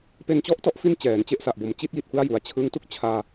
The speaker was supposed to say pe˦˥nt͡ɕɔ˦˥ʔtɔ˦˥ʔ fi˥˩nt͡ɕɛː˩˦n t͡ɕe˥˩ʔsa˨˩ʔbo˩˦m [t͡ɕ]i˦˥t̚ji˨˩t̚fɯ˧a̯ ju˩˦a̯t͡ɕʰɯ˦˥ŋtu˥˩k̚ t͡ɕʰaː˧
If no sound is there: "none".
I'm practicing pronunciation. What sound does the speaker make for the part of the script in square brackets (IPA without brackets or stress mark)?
t͡ɕ